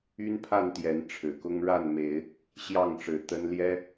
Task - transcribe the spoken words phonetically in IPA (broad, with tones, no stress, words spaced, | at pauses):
y˦npʰa˥˨nt̪jɛ˨˦n ʈ͡ʂʰɻ̩˨˩kʊ˦ŋ ɻa˥˨nme˨˦ɪ̯ | ɕjɑ˥˨ŋʈ͡ʂɻ̩˨˦t̪ə˦n ljɛ˦